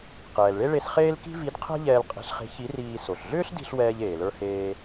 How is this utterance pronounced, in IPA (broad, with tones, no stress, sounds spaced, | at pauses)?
q ɛː˩ l ɭ e˥ ɭ e˧ s χ eː˥ l k i̤˥ v i˧˥ d qʰ ɛ̤˥ ʎ ɛː˧ l qʼ e̤˧ ɬ χ e̤˧˥ ç i˧˥ r iː˧ s o˩ ɬ ɮ ʏː˥ ɬ d i̤˧ ɬ w ɛː˥ ʎ eː˩ l ə˞˥ h eː˥